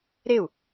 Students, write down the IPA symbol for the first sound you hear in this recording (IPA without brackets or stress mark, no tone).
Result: ɾ